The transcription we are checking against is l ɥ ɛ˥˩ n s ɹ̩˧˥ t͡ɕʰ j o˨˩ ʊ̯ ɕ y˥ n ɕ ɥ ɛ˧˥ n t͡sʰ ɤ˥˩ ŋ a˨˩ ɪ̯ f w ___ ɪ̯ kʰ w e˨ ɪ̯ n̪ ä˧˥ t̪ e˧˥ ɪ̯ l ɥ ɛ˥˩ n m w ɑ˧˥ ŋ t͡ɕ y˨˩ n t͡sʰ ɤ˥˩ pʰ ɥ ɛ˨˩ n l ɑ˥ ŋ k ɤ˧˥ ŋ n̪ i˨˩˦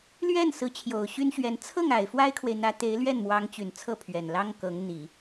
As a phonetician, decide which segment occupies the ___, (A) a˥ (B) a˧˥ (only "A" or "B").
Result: A